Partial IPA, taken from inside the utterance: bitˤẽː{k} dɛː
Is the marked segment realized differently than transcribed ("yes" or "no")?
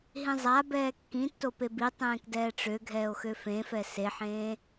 no